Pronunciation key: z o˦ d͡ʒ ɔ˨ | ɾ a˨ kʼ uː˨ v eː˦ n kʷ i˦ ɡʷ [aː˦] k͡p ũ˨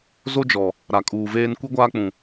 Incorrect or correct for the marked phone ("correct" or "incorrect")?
correct